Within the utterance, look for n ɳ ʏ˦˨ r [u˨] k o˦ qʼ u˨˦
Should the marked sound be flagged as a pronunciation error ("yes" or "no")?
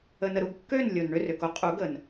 yes